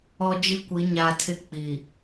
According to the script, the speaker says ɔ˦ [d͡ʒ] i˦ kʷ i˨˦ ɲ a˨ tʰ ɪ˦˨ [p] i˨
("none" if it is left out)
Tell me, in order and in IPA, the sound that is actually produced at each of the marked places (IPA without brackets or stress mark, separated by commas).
d͡ʒ, k͡p